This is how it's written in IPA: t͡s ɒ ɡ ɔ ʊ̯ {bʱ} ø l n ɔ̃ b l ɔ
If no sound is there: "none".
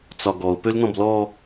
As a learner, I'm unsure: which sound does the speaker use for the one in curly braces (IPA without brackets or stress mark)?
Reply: p